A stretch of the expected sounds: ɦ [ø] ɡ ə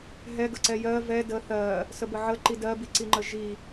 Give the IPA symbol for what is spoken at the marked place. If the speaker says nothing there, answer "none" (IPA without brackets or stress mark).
ɛ